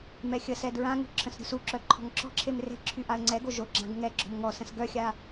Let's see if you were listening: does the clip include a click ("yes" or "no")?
yes